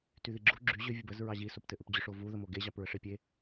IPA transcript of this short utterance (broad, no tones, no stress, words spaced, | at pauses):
tyðiɡ͡ǁu ɡ͡ǁy ʑʏ vʲəbəz ɹɑʑi soptɘʔʏpd͡ʑʏʂ ovu ðəmoɡe ʑɑpɹəʂepʲe